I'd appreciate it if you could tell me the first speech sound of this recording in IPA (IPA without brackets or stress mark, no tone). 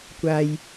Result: kʷ